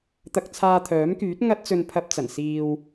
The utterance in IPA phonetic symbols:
t̪ ɐ˧ k̚ t͡sʰ aː˧ t̪ʰ œː˨˥ m k yː˨˥ t̚ ŋ ɐ˥ t̚ t͡s ɵ˧ n pʰ ɐ˧ p̚ t͡s ɐ˨˩ n s iː˧ w

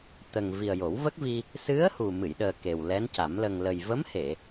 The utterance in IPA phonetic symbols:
t̪ ə˨˩ ŋ v i˨˩ ə̯ j o˨˩˦ w v ə˦˥ k̚ v i˧ | s ɨ˧˥ ə̯ h u˨˩ m ɨ˨˩˨ j ɗ əː˨˩ k e˨˩ w l ɛ˧˥ n c a˨˩˦ m l ə˨˩ ŋ l ə˨˩ j v ə˧˥ m h e˨˩˨

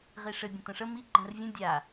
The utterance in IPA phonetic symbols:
ʁ i ʂ ɘ bʲ ə̃ t ə̃ ʂ ə m i ɡ͡ǃ ɛ̃ r vʲ ə̃ dʲ a

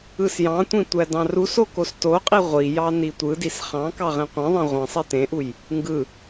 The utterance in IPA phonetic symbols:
ɯ s j ɑ̃ tʷ ĩ tʷ æ d ɑ̃ r u s o k o s t o qʼ i ʁʷ i j ɑ n i tʷ ɯ d i s χ ɑ̃ k ɑ ʁ ẽ qʷ ĩ ðˤ ẽ ʁʷ ĩ sˤ e t ẽ ʔ u j | ŋ ɡ ɯ

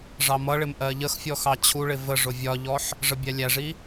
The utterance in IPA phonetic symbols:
ʐ ɑ m ʌ ɭ ɪ m ʔ ɜ ʎ ə x fʲ ɔ x ɑ t͡ɕʰ u ɭ ɪ v ə ʐ ʊ vʲ ɒ ʎ ɔ ħ | ʐ ə bʲ æ lʲ æ ʐ i

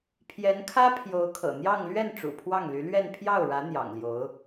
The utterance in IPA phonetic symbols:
pʰ j ɛ˧˥ n kʰ ä˥ pʰ j o˧˥ ʊ̯ kʰ ɤ̰˨˩ n̪ j ɑ˥˧ ŋ l ɥ ɛ˥˩ n ʈ͡ʂ ṵ˨˩ pʰ w ɑ˥˩ ŋ l y˧˥ l ɥ ɛ˥˧ n pʰ j ɑ˥˩ ʊ̯ ɻ ä˧˥ n̪ j ɑ̰˨˩ ŋ l j o˧˥ ʊ̯

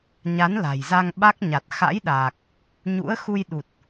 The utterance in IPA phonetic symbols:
ɲ a˨˦ n l a̤˨˩ j z a˧ ŋ ɓ a˦˥ k̚ ɲ a˨˩ t̚ x a̰˧˥ j ɗ aː˨˩ k̚ | ɲ ṵ˧˥ ə̯ x u˧ j ɗ u˨˩ t̚

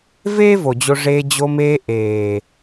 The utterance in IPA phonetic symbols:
v eː˦ v o˨ d͡ʑ o˧ ʐ eː˧ d͡ʑ o˧ m eː˧ ʔ eː˨

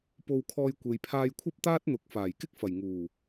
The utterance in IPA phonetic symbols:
p o˧ w kʰ ɔː˧ j kʷ e˨ j pʰ aː˧ j kʷʰ ɐ˥ p̚ t̪ aː˥ t̚ n̪ ʊ˨˥ k̚ f aː˨˩ j k ɪ˥ k̚ f ɐ˨˩ j ŋ uː˨˩

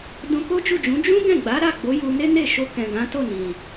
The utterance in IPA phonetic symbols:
d ũ˧ k o˦ d͡ʒ u˦˨ d͡ʒ ũ˨˦ d͡ʒ ũ˦ ɡ ɛ̃˦˨ ɡ͡b a˨˦ ɾ a˦˨ ɡ͡b o˨˦ j u˧ n e˦ n e˦˨ ʃ o˧ k ɛ̃˨ ɡ ã˨˦ t o˦˨ n ĩ˨

